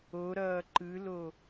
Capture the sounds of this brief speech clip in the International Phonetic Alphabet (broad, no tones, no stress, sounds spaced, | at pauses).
o ɾ ʌː ǃ ɯ l o